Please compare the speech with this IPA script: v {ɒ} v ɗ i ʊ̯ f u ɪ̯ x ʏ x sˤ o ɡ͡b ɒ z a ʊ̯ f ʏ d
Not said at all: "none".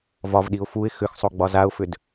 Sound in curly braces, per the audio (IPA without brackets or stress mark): ɒ